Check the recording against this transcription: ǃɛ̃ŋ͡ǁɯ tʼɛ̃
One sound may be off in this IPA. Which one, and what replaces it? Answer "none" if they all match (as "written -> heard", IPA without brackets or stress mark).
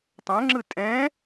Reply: ǃ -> tˤ